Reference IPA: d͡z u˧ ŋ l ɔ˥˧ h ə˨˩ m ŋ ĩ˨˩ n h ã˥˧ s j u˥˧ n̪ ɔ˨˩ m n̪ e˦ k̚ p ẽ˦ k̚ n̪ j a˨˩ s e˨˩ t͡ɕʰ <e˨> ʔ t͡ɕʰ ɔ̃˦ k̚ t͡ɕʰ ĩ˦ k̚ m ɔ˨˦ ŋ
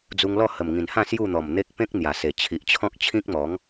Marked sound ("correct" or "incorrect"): incorrect